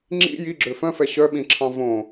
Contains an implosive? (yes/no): yes